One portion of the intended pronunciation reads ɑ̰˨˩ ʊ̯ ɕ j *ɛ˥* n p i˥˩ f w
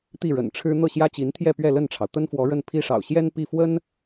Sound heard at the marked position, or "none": ɛ˥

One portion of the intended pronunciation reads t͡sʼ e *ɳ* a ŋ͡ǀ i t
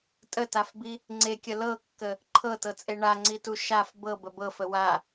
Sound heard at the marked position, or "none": ɳ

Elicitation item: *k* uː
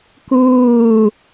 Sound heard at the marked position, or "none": k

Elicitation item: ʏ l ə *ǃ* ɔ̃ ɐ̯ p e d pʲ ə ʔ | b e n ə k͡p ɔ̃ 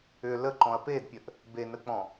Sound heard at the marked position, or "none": ǃ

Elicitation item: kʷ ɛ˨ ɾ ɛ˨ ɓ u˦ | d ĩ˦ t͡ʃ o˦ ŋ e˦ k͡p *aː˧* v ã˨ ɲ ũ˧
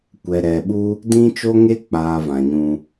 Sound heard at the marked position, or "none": aː˧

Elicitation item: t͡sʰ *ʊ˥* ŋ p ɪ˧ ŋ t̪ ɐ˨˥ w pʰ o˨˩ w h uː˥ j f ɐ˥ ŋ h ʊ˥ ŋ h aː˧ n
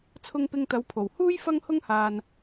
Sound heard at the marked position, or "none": ʊ˧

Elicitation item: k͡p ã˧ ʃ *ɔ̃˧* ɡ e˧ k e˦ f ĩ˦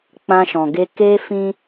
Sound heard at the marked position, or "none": ɔ̃˨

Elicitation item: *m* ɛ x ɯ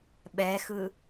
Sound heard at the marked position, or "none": ɓ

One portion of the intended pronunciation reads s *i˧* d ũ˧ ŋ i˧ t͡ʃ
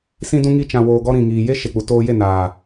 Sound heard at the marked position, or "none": ĩ˧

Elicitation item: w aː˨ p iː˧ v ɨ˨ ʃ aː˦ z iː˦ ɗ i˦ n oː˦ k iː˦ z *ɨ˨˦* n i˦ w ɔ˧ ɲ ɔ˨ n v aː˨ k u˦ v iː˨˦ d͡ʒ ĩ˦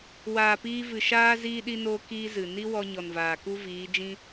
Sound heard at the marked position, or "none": ɨ˨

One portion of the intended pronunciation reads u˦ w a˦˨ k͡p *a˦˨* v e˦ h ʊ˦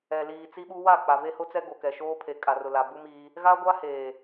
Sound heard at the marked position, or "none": a˨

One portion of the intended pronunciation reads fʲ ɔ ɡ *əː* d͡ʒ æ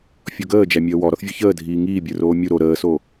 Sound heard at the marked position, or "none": əː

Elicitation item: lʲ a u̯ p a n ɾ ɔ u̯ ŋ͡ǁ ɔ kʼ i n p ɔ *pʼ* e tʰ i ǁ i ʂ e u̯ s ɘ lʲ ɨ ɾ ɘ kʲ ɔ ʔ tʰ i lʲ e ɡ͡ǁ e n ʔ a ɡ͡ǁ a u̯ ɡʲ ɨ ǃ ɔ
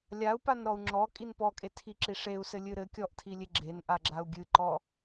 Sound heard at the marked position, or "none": kʼ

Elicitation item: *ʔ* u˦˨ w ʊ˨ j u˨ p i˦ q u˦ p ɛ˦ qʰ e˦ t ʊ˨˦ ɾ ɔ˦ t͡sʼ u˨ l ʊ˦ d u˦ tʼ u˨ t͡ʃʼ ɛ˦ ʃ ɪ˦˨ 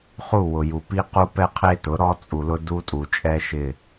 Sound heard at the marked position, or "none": χ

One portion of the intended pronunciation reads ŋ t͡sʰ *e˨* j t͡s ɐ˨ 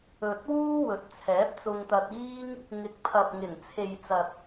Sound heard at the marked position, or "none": e˨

